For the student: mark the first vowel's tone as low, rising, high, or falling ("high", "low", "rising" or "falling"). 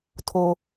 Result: low